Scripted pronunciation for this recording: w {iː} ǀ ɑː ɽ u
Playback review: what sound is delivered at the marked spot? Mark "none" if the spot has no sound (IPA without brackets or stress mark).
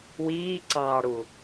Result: iː